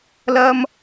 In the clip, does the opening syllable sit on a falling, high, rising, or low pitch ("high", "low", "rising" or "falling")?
high